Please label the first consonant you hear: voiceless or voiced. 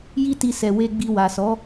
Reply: voiced